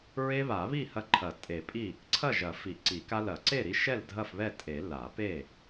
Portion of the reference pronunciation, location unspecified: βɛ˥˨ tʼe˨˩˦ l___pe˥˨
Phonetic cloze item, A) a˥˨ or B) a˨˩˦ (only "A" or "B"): B